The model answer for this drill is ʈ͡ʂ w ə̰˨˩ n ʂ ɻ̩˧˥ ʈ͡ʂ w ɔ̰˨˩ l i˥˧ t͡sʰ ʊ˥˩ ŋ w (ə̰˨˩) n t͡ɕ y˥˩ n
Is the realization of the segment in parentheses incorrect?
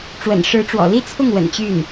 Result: no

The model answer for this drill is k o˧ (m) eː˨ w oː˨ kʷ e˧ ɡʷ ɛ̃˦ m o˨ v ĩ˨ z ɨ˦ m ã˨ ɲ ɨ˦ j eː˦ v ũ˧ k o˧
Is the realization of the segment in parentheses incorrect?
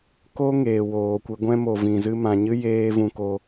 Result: yes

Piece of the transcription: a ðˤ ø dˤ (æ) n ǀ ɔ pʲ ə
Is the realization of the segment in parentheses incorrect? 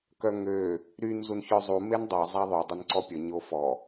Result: yes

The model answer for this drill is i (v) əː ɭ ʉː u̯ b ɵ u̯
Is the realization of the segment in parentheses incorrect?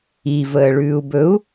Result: no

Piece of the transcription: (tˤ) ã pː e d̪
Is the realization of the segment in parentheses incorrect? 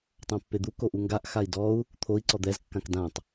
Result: no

